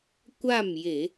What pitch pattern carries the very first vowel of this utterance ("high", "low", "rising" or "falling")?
falling